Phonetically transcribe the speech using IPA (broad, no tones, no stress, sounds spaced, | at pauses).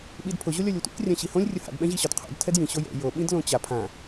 ɓ i d pʰ ʊ ʑ o lʲ ɒ lʲ o tʷ ḭ k rʲ ã ɕ i h õ lʲ rʲ ʊ h a̰ d ɓ ɛ̃ ʑ i ɕ ɒ d qʰ o̰ d tʰ ɛ d j ĩ ɕ o j ɛ̰ j o ɓ ĩ d l õ t͡ɕ a pʰ ã